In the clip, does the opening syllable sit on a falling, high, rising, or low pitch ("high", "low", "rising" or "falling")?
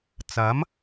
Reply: rising